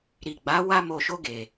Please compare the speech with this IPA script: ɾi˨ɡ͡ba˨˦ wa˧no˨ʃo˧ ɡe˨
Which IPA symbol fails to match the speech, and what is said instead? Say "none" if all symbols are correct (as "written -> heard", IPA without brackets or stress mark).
n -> m